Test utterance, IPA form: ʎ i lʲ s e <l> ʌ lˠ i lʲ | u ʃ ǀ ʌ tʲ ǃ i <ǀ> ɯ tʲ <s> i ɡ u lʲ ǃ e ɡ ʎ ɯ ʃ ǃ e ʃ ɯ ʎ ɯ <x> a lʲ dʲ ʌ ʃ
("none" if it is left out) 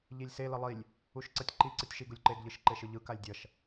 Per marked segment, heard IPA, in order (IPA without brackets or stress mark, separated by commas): l, ǀ, ʃ, k